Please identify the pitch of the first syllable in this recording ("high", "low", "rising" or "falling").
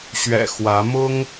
low